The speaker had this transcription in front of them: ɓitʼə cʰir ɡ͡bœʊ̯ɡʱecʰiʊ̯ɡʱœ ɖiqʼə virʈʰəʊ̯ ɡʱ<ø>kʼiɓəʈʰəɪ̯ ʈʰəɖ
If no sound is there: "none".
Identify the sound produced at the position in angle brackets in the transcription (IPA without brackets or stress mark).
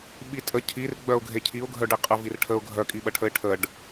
œ